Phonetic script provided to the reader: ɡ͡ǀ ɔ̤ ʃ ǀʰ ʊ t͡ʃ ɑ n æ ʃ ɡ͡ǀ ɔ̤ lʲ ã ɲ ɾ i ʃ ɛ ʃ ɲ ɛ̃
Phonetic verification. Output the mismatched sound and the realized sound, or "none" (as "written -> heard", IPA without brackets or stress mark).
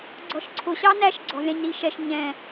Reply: t͡ʃ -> ɕ